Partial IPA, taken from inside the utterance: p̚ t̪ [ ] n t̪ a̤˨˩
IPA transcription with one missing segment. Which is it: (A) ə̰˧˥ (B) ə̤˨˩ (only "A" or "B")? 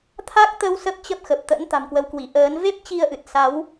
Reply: A